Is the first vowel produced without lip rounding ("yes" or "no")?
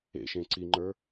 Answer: yes